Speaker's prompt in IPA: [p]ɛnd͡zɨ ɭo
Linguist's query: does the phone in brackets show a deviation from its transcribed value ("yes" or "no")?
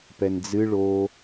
no